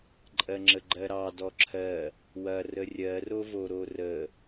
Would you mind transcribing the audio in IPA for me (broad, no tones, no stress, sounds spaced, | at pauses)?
ǃʼ ɜ ŋ͡ǁ ə ɡ͡ǃ ɜ ɾ ɑ d ɔ ǁʰ ɜ | w ɐ r ə rʲ ɜ r o v o ɾ o r ə